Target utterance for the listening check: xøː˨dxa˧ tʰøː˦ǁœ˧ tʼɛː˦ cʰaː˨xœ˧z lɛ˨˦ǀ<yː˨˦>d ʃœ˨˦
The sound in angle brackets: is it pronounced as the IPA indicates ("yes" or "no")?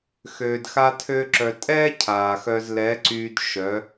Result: no